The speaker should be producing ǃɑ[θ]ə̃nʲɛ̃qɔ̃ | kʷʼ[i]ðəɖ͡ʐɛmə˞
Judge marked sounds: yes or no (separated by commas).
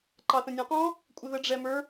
yes, no